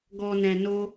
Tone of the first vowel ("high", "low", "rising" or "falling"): low